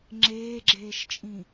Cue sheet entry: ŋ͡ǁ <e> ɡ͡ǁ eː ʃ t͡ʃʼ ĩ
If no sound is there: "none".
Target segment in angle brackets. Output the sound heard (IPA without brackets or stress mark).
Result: eː